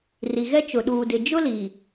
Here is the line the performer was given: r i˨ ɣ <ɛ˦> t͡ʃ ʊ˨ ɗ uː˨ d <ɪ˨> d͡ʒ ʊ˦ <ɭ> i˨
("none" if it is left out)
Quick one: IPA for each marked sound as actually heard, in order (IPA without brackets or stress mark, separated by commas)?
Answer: ɛ˦, ɪ˨, l